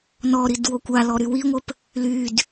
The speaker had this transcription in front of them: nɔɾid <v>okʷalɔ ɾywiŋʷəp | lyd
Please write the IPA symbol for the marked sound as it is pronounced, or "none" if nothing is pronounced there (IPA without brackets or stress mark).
w